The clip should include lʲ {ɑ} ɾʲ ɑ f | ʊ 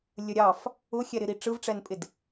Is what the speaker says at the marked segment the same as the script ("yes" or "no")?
no